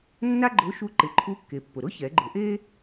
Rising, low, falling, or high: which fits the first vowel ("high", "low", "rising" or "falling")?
high